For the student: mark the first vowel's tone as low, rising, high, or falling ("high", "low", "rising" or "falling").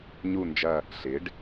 falling